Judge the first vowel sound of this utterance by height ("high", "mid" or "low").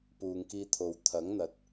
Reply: high